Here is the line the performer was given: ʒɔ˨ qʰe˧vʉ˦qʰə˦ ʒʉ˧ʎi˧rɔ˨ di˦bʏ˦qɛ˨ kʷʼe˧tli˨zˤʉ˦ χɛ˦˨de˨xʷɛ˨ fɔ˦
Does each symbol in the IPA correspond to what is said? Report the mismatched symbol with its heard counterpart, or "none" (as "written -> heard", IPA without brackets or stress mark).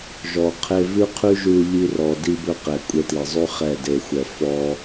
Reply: ə˦ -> ʉ˦